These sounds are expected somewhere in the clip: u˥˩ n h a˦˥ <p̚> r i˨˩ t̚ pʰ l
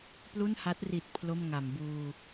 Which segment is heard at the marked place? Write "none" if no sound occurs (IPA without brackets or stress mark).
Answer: t̚